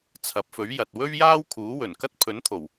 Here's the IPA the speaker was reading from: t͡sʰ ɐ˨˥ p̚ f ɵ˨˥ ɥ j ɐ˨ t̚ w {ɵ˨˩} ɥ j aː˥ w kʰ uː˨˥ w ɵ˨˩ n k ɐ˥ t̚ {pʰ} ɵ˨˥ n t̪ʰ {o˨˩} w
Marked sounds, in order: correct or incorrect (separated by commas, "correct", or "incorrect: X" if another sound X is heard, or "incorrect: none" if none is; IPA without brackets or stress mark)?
incorrect: ɵ˥, correct, correct